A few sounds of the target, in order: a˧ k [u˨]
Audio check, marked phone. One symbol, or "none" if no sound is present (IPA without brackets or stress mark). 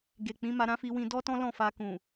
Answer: ũ˨